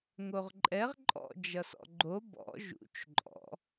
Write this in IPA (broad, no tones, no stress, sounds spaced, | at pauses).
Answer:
ŋ o ʁ ǃʼ ɛ ʁ ǃʼ ɔ̰ d͡ʒ ʌ s ɔ̰ ɡ͡ǃ o b ɔ̰ ʒ ṵ t͡ʃ ǃʼ ɔ̰